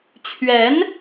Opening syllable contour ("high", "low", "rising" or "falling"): rising